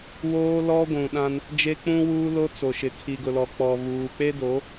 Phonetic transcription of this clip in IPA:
w oː˦ l ɔ˦ ɡʷ ũ˨ ɗ ã˦ n | d͡ʒ e˦ k͡p ũ˦ w uː˦ l o˦ t͡s o˨ ʃ ɪ˨ kʰ i˨ ɡ ʊ˨ l ɔ˨ k͡p ɔ˨ β uː˨ k͡p e˦ d o˨˦

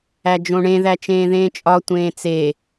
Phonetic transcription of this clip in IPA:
æ d͡ʒ õ ɳ ẽ ð æ t͡ʃ ẽː ð ẽː t͡ʃʼ ɒ tʷ ẽː t͡s e

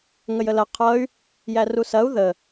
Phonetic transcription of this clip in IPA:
ŋ ə j ə l ɐ qʰ ʌ y̯ | j æ r u s ɐ u̯ ð ə

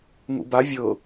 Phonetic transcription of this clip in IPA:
ŋ ṵ b a vʲ ɤ

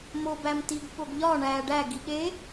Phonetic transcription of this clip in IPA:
m o b æ m t i ɡ ɓ o ɡ ʎ ɒ ɳ æ ɖ æ ɡ i ɠ e

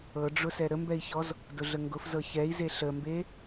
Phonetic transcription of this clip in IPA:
ɤ ɖ͡ʐ ʊ s ɛ ɾ ə m b ɛ i̯ ç ɔ z | d ʊ ɮ ə ŋ ɡ ʊ f z ɤ ç ɛ i̯ z e ɬ ə m b e

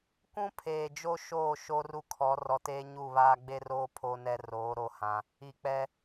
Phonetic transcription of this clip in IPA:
kʷ ũ˦ pʰ eː˨ d͡ʒ o˦ ʃ oː˦˨ ʃ o˦ r u˦ kʰ ɔ˨˦ r ɔ˨ t eː˦ ɲ u˦˨ β aː˦ ɡ͡b e˦ r oː˦ pʰ o˦ n ɛ˦ r oː˨˦ ɾ o˦ h ã˦ | i˨ k͡p ɛ˦

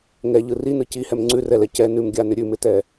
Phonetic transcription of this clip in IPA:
ŋ ɛ ʎ ɯ r i n ɯ c i h ɛ m ŋ͡ǀ ʉ r ɛ l ɛ c ɛ n ʉ m ɡʲ a n ʏ ɾʲ ʉ m ɪ t ɛ

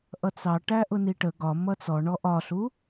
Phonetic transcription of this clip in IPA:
ʔ ʌ t͡s ɑ ʈ æ ʔ ʊ n i ʈ ə ɡ ɒ m ʌ t͡s ɔ ɳ ɔ ʔ ɒ ɬ u

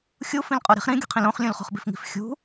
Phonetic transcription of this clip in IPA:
xʲ u f ĩ l qʼ o ɾ i̤ χ ɾ ĩ ɡʲ ṳ qʰ ĩ l õ χ lʲ ũ l χ o̤ χ b i̤ f ŋ i̤ f xʲ ṳ

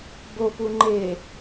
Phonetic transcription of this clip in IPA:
b o p u ŋ͡ǃ e

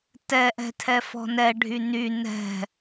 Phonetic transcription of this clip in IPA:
t ɛ ʔ ɛ̤ tʰ ɛ f ɔ̤ n ɛ ɖʱ y n y n ɛ̤

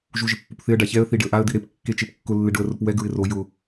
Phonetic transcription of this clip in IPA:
ʒ u ʒ ɪ pː u p θ ɪ ə̯ ɖ a ç ɛ ə̯ θ i ɖ ɪ ə̯ ʔ a ə̯ d̪ i ɾ e p kː e t͡ʃ e p kː ʊ lː ɪ ɖ ʊ ə̯ r ʊ p w ɛ ɡ ɹ ɪ r o j ʊ

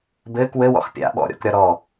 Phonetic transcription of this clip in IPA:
b ɘː k w ɘ w ɔ̰ x pʲ a̰ ɓ ɔ̰ ɾʲ ɔ̰ k ɾʲ ɒ ɾ ɔ

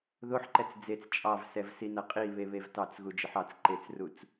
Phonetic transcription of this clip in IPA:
ð o ħ ǃ ɛ t͡s d͡z e t͡s t͡ʃʼ ɑ v s ɛ v s i n ɐ qʼ i β e β e v t ɑ t͡s ɣ u d͡ʒ ə ħ ɑ t͡s ǃ e t͡s r u t͡s

